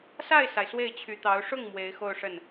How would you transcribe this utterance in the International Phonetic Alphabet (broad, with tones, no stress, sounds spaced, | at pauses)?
s a˥˩ ɪ̯ s a˩ ɪ̯ s w e˥˩ ɪ̯ t͡ɕʰ y˧˥ t̪ ɑ˧˥ ʊ̯ ʂ ʊ˥˩ ŋ m w e˧˥ ɪ̯ x o˥˧ ʊ̯ ʂ ə˥˩ n